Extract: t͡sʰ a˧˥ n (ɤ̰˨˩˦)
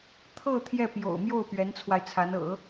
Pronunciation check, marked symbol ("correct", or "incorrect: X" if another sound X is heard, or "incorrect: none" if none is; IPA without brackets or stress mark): correct